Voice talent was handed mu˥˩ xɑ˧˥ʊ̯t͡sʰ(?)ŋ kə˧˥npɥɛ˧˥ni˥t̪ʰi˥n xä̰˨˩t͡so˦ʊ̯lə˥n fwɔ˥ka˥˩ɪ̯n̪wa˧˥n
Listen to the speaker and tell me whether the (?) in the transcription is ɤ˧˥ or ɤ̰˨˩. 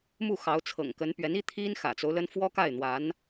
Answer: ɤ̰˨˩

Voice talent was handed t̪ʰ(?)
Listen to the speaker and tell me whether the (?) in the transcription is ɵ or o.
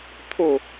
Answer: o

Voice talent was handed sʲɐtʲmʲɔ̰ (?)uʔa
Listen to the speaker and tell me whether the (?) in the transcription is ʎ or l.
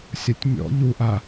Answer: ʎ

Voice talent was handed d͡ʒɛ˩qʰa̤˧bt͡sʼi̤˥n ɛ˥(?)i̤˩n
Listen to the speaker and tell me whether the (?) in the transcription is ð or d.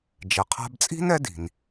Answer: d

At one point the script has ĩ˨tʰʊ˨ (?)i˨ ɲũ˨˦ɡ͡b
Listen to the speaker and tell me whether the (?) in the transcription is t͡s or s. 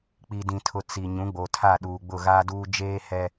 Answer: t͡s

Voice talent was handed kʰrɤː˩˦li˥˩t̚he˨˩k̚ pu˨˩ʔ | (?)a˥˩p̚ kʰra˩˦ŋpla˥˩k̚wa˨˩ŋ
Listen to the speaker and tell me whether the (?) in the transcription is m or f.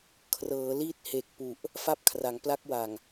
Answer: f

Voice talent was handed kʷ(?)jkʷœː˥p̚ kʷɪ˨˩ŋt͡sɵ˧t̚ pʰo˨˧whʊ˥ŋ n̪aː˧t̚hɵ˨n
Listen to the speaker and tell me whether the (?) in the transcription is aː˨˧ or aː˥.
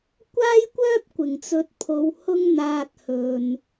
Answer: aː˥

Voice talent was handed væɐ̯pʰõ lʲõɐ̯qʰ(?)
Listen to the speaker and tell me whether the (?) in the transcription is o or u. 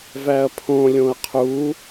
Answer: u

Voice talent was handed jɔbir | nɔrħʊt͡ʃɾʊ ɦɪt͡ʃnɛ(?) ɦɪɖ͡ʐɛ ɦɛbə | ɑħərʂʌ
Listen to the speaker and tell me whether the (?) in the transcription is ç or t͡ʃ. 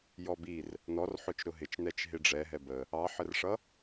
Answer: t͡ʃ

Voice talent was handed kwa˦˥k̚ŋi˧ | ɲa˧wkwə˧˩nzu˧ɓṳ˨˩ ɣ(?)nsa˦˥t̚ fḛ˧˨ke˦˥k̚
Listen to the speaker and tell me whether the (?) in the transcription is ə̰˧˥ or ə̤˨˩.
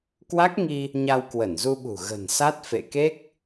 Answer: ə̤˨˩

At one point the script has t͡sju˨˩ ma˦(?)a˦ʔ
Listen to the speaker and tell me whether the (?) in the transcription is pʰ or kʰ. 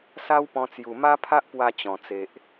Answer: pʰ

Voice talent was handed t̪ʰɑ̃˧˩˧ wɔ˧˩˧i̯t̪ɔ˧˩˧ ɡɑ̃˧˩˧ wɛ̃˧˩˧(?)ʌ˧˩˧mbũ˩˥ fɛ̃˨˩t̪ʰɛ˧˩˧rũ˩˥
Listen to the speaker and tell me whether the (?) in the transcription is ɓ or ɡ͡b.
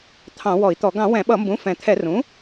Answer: ɓ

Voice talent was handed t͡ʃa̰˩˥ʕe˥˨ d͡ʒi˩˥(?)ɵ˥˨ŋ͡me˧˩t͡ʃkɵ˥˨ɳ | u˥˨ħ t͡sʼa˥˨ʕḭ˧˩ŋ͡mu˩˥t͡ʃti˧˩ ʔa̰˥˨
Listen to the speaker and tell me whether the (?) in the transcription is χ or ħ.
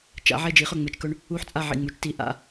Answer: χ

